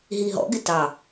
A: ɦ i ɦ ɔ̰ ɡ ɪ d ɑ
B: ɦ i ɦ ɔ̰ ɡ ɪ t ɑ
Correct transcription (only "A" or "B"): B